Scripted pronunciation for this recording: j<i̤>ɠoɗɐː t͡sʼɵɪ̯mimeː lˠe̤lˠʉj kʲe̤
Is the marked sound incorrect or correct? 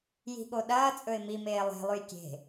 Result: correct